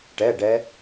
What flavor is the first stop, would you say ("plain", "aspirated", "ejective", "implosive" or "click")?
plain